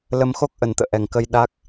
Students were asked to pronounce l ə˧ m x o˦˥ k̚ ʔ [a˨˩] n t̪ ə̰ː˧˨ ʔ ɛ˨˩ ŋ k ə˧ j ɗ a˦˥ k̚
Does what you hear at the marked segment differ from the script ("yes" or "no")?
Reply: yes